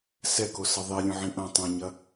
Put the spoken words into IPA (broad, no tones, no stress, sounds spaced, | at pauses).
s ɛ k o s ɐ ðˤ i lʲ ũ ʕ ĩ ʔ ɐ̃ tˤ ũ ɲ ɐ